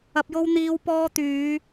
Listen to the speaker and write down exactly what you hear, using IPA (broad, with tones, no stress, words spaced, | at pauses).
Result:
ɐ˧p̚jo˥w n̪iː˧w pɔː˧t̪yː˨˧